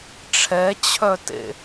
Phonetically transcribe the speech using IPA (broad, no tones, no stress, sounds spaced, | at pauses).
ʈ͡ʂʰ ɛ t͡ɕʰ œ t ḛ